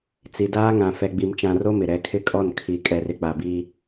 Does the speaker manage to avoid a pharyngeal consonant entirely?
yes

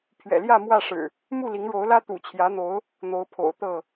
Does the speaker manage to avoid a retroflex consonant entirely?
no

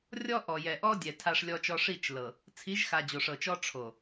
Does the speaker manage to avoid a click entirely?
yes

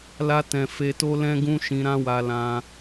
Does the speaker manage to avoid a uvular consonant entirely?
yes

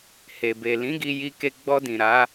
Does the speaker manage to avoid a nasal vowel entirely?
no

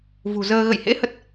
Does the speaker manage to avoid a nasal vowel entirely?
yes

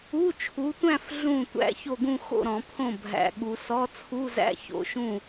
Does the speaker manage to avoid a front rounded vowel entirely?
yes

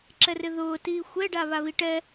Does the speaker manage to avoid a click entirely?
no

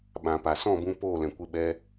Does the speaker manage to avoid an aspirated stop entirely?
yes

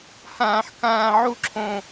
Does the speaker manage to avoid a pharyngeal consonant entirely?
no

